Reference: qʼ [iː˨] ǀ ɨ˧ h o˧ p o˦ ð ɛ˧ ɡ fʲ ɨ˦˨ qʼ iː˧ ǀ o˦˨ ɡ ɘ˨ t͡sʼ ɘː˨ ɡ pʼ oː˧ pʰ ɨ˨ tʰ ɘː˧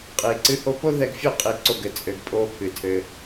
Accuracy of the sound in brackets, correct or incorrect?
correct